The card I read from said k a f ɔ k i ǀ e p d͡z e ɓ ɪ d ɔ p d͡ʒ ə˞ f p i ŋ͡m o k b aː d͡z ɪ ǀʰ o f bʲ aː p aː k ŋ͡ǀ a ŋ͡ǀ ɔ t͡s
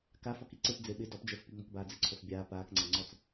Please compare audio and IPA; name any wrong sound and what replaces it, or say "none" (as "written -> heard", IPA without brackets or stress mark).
none